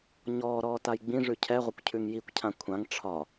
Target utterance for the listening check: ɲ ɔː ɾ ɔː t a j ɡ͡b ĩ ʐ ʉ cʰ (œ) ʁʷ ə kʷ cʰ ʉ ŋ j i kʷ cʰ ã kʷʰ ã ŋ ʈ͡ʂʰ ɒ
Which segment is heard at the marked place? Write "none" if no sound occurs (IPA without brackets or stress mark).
ɛ